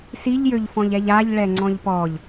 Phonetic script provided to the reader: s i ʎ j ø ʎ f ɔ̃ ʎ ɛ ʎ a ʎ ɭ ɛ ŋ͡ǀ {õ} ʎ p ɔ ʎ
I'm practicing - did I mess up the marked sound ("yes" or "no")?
yes